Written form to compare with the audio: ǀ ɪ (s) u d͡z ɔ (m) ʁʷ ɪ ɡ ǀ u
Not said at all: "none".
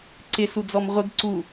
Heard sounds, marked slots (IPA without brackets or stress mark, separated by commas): s, m